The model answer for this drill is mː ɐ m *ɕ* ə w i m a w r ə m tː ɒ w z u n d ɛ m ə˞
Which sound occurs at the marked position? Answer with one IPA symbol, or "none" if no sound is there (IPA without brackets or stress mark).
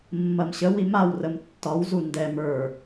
ɕ